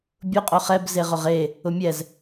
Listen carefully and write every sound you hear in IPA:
bʲ ʊ qʼ o χ ɛ b z e ʁ ʊ ʁ e | ʊ mʲ ɛ z

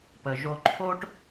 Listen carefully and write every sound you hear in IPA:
p ə˩ ʒ o˧ ǃʰ o˥ ʈ

